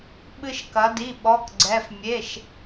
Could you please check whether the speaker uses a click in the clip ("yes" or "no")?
yes